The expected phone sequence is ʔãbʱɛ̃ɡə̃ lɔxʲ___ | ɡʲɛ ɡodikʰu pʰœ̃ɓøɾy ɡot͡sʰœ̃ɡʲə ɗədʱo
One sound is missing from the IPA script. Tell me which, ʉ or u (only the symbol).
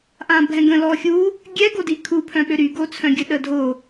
u